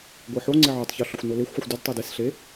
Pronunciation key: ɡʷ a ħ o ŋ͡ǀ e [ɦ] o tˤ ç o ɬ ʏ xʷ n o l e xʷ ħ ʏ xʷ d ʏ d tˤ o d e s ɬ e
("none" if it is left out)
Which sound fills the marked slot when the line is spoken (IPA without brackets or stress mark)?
ʕ